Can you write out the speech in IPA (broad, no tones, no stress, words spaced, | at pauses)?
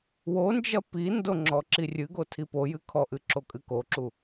wond͡ʒɐ pindo ŋ͡ǁɔǁirʲɨɡo tʰipojɨ kʰɔʔɨ ǁokʼɨkoǁu